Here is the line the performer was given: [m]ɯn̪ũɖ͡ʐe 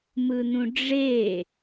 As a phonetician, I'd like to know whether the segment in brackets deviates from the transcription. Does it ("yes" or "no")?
no